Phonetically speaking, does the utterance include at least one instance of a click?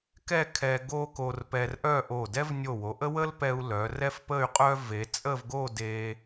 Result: no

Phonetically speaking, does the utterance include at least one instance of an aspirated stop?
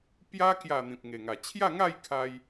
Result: yes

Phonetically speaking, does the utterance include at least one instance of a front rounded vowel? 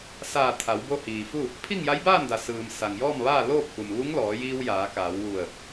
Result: no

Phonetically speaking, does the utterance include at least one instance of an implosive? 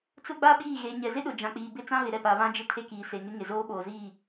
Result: yes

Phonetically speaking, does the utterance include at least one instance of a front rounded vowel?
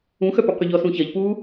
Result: yes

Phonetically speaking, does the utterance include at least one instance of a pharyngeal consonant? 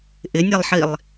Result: yes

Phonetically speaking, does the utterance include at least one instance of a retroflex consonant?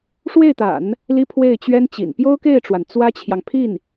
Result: yes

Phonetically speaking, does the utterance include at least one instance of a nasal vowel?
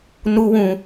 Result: yes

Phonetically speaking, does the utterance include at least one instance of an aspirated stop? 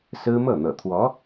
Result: yes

